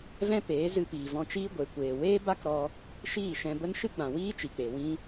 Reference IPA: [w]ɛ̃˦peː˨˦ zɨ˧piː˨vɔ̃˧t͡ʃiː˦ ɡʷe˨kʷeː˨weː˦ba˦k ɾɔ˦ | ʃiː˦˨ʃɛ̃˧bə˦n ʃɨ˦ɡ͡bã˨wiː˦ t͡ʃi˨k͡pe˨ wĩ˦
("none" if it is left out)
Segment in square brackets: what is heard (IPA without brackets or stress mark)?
v